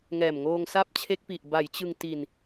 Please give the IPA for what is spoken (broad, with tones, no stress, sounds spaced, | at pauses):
ŋ ɛː˨˩ m ŋ oː˧ ŋ s a˦˥ p̚ t͡ɕʰ e˦˥ k̚ p i˨˩ ʔ b a˩˦ j t͡ɕ ɯ˧ ŋ t i˧ n